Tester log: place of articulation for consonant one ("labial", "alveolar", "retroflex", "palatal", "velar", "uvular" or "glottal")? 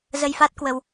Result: alveolar